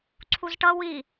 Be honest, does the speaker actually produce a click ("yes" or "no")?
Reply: yes